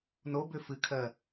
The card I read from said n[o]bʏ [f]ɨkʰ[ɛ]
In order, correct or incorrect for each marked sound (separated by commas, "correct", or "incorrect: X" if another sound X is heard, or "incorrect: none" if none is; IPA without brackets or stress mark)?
correct, correct, incorrect: ɜ